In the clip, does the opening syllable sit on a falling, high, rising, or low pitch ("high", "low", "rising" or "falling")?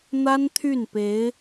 high